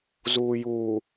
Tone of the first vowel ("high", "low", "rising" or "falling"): low